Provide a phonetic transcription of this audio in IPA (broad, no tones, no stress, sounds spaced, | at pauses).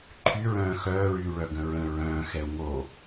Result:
ǃʰ y ɹ œ̃ː x œː ɹ yː ɭ œ ɡ ə̃ ɹ ə̃ ɹ œ̃ː x ɛ u̯ ŋ o